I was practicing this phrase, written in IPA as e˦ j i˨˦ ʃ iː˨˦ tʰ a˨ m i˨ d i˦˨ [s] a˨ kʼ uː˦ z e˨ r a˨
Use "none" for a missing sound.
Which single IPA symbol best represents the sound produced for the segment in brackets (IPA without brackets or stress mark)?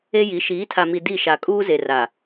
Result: ʃ